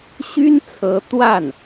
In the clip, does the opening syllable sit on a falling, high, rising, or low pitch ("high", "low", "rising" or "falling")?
high